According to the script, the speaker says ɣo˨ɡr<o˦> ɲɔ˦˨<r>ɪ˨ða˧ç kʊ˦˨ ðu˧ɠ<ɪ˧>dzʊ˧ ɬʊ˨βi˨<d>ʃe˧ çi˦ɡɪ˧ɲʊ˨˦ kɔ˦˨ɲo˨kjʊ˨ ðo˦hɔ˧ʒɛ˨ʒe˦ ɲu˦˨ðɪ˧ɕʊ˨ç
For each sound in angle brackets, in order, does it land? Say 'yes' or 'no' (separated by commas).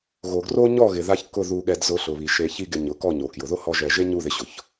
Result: yes, no, no, no